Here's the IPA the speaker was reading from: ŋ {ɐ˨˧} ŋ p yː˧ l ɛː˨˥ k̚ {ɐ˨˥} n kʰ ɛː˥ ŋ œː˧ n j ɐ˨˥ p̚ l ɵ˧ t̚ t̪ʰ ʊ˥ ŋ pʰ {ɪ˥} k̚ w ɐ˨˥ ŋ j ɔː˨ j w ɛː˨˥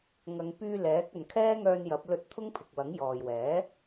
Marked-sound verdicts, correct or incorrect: correct, incorrect: ɐ˨˧, incorrect: ɪ˨

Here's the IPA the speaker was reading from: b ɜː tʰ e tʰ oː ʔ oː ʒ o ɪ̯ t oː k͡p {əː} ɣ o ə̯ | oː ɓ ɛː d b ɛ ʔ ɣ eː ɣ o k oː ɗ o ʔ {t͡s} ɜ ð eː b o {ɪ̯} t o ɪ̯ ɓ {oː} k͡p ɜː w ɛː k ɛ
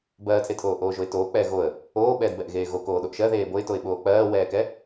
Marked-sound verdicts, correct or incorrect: incorrect: ɛː, incorrect: ʃ, correct, correct

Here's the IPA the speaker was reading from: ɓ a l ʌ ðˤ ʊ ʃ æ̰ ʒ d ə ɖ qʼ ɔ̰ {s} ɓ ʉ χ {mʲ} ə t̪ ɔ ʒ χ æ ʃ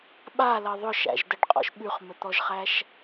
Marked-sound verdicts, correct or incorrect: incorrect: ʃ, incorrect: m

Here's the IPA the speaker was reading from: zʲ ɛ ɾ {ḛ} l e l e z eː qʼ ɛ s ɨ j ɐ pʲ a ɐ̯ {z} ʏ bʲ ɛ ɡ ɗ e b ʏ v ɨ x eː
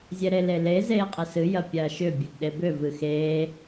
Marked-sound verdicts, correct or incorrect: incorrect: e, incorrect: ʃ

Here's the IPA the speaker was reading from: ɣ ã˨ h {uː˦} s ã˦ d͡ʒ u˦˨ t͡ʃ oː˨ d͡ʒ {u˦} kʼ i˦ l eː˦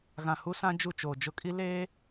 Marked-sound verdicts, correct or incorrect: incorrect: u˦, incorrect: ʊ˦

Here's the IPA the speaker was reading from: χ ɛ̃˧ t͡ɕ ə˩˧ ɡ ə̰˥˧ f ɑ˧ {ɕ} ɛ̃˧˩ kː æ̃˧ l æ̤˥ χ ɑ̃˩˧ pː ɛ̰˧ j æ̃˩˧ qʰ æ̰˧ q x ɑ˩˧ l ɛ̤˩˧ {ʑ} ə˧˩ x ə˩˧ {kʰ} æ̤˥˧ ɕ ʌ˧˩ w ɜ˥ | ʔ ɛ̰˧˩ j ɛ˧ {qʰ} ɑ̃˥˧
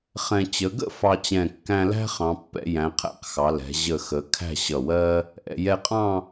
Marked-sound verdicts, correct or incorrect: incorrect: t͡ɕ, correct, correct, incorrect: qʼ

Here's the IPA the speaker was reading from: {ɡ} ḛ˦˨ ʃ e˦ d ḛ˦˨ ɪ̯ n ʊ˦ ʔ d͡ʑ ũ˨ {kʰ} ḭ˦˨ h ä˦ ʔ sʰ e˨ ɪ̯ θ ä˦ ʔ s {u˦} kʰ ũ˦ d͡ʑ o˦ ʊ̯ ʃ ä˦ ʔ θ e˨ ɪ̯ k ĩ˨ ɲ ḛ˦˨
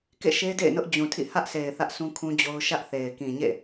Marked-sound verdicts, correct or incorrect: incorrect: k, incorrect: tʰ, incorrect: ũ˦

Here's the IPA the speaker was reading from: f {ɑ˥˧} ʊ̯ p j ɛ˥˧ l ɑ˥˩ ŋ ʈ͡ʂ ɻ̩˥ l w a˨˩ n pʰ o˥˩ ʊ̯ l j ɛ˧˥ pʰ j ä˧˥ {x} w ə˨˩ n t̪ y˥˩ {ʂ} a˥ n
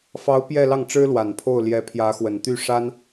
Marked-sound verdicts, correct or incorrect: incorrect: ɑ˧˥, correct, correct

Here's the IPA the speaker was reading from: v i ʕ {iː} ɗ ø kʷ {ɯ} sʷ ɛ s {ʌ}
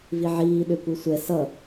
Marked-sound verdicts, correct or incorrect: correct, correct, correct

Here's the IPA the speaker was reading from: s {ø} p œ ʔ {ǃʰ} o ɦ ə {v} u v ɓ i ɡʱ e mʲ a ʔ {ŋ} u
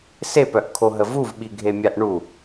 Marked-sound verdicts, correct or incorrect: incorrect: e, incorrect: kʰ, correct, incorrect: ɳ

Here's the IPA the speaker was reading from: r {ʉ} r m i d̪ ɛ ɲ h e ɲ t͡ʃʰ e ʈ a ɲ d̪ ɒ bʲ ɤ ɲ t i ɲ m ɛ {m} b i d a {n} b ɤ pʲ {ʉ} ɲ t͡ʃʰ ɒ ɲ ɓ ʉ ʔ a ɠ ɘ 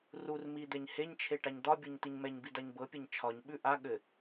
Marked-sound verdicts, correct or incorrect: incorrect: u, incorrect: ɲ, incorrect: ɲ, incorrect: ɘ

